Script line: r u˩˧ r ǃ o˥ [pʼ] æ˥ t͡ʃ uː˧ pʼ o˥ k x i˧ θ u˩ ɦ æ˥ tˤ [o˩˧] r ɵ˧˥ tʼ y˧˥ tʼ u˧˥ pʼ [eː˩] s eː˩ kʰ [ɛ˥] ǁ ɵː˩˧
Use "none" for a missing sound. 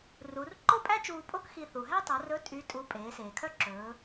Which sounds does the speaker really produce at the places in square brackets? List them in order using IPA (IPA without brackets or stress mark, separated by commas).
pʼ, o˩˧, eː˩˧, œ˥